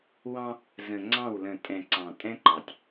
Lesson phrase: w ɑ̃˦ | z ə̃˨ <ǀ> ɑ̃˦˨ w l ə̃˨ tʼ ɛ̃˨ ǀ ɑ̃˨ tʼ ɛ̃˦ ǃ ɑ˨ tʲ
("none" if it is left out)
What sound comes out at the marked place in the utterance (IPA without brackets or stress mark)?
ŋ͡ǀ